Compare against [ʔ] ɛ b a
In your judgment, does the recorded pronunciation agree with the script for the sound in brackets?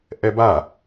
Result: yes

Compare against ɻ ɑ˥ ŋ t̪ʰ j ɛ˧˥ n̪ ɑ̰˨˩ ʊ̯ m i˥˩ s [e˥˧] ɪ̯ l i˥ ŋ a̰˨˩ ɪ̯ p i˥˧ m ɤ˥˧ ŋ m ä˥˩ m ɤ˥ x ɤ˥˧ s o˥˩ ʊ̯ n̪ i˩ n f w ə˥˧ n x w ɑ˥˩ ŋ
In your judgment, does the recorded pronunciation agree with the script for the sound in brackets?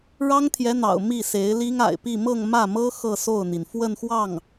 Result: no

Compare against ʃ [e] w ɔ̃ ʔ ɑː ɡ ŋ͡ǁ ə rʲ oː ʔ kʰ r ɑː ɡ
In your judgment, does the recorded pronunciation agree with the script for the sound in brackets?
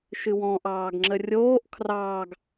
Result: no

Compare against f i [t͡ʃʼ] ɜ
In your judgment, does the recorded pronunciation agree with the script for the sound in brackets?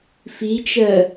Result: no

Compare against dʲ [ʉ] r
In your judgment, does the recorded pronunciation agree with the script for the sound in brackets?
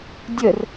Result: no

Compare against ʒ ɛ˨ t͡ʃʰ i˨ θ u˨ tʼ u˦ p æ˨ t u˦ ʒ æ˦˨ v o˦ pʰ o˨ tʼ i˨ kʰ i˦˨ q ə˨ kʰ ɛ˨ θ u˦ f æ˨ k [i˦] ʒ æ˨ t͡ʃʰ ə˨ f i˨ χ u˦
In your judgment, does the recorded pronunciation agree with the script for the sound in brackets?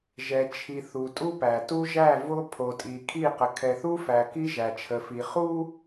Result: yes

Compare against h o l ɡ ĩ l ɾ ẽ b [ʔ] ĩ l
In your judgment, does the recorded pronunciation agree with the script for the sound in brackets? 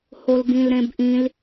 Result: yes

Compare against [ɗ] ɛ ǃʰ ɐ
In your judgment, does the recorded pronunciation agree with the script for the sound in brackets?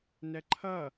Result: no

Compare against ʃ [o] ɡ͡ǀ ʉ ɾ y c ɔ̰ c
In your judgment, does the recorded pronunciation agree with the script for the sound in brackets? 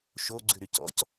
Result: yes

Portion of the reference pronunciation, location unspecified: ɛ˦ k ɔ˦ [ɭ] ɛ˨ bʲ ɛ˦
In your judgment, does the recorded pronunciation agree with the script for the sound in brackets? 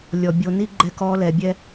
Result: no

